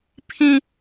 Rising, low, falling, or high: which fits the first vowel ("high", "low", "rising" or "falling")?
high